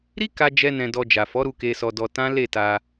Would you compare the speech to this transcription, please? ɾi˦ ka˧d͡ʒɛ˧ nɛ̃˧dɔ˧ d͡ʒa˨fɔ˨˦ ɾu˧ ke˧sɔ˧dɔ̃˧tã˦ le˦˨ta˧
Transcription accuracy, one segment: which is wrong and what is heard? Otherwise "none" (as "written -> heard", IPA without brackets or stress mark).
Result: ɔ̃˧ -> ɔ˧